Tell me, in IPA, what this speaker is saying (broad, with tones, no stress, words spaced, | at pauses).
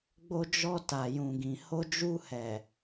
ɡ͡bo˧d͡ʒɔ˧ta˨ jũ˨ɡĩ˨ ho˧d͡ʒu˧hɛ˨